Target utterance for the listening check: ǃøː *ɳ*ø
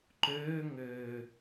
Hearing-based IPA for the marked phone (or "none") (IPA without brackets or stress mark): ŋ